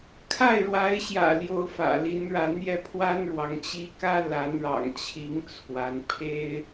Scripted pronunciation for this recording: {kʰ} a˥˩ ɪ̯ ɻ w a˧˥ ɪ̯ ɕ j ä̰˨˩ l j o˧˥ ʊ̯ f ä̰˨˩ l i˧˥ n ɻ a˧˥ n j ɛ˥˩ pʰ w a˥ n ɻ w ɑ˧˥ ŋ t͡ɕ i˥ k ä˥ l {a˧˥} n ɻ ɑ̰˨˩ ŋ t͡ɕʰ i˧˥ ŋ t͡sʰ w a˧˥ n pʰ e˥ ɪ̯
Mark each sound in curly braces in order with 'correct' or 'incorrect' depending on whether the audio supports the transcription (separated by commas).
correct, correct